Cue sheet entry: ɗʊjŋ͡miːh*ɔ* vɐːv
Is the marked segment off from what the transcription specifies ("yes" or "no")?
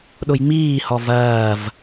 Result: no